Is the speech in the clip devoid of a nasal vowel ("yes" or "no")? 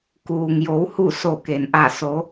yes